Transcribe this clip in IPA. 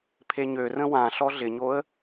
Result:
pʰ e ɲ ø r ə̃ w ã ɬ ɔ ɮ ɪ ɲ o ə̯

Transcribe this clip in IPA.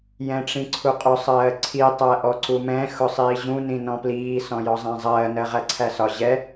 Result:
j ɛ̃ ʈ͡ʂ ĩ ǀʰ u qʼ ʊ sˤ ɜː ǀʰ i tˤ æ ʔ ɔ ǀ u m ɛ̃ x ʊ sˤ iː ʑ ũ n ĩ n ɔ̃ p l iː s ɔ̃ j ɔ zˤ æ̃ zˤ ɜː n ɜ ʁ æ ǀʰ æ s ɒ ʑ ɛ

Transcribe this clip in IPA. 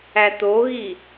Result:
æ t̪ o ɣ i

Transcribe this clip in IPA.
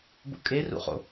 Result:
b ṵ kʼ e r ṵ χ o̰

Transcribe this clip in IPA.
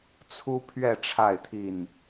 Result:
t͡sʰ u˦ pʰ ɥ ɛ˥˨ ʈ͡ʂʰ a˥˨ ɪ̯ t̪ʰ i˥˨ n

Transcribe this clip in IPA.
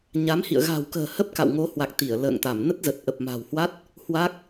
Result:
ɲ a˨˦ m h ḭ˧˨ ə̯ ɣ a̤˨˩ w k ə̤ː˨˩ h ə˦˥ p̚ k a̰˧˨ w ŋ o˨˦ h w a˨˩ k̚ t̪ i˧˩ ə̯ l ə̰ː˧˨ ŋ t̪ a˧˩ m n ə˦˥ t̚ z ə˨˩ t̚ ʔ ə˨˩ p̚ m a̤˨˩ w h w a˦˥ t̚ | h w a˦˥ k̚

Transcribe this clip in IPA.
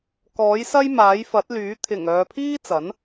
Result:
k ɔː˨˥ j s ɐ˥ j m aː˨˥ j f ɐ˨˥ t̚ l yː˨˥ t̪ʰ ɪ˨˩ ŋ œː˨ pʰ iː˥ t͡s ɐ˨˥ n

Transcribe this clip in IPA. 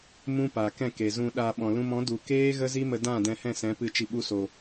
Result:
m ũ˦ p a˨ k ɛ̃˦˨ k e˨ z ũ˧ ɗ a˧ ɓ ɔ̃˨ l ũ˧ m ɔ̃˨˦ d u˨ k eː˦ ɣ ə˦ z i˦ m ə˧ d ã˦˨ d ɛ̃˧ h ɛ̃˦˨ s ɛ̃˨˦ p ɨ˧ t͡ʃ i˨ ɓ u˧ s o˨

